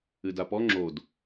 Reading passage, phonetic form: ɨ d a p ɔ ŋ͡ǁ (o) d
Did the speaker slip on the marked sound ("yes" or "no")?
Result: no